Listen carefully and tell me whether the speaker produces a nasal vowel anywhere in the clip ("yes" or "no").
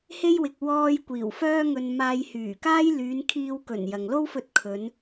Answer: no